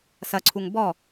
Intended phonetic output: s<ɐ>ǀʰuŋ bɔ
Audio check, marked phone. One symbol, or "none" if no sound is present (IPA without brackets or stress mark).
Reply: ɐ